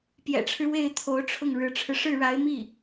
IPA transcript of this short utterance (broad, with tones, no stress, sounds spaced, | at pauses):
p j ɛ̰˨˩ ʈ͡ʂʰ ɻ̩˦ w e˥˩ ɪ̯ t̪ʰ o˧˥ ʊ̯ ʈ͡ʂʰ ʊ˥˩ ŋ ɻ ɻ̩˧˥ ʈ͡ʂʰ ɻ̩˧ ʂ ɻ̩˥˩ ɻ a˧˥ ɪ̯ m i˥˩